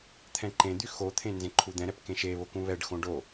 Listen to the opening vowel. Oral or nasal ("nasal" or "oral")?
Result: nasal